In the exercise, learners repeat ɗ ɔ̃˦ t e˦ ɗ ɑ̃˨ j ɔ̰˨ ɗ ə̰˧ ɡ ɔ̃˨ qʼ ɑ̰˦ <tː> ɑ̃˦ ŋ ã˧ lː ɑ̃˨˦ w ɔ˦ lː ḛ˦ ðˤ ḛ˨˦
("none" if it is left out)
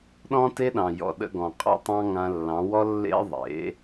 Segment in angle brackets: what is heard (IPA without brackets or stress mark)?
tˤ